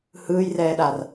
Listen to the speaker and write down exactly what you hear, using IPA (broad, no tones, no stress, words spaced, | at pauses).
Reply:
hɯːjrɛːɗar